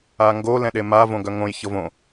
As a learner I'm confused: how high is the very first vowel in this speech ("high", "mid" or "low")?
low